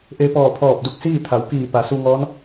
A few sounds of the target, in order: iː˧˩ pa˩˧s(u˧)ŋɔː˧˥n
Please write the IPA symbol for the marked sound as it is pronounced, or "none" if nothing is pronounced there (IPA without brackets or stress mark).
u˧